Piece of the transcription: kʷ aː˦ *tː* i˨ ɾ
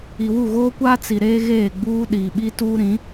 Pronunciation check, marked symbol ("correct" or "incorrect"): incorrect